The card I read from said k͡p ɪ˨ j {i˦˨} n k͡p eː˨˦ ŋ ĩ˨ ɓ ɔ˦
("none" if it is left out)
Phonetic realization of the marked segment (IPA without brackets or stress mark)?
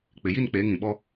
i˦˨